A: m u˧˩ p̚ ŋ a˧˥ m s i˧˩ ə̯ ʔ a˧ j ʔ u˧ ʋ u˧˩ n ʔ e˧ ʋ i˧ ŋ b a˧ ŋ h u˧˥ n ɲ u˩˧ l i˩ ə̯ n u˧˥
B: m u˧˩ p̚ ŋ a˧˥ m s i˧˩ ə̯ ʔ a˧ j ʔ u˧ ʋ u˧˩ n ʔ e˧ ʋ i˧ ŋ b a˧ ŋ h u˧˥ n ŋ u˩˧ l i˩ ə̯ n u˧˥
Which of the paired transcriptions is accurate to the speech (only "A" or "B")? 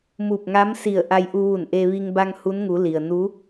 B